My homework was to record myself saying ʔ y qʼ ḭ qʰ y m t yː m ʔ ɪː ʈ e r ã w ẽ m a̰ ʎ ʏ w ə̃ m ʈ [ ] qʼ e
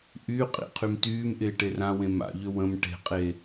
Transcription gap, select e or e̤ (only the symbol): e̤